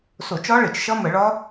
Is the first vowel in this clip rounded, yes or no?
yes